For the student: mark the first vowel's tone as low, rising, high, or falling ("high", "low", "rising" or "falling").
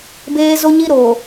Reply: high